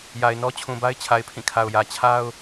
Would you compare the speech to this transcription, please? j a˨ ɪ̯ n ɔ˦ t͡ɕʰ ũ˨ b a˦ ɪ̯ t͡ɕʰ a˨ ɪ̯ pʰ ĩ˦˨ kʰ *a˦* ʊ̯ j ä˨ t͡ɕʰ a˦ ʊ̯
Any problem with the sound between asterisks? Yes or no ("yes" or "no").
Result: yes